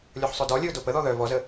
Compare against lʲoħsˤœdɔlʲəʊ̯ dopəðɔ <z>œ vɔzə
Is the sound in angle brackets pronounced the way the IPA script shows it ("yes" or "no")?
no